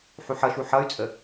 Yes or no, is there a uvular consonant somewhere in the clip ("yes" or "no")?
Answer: no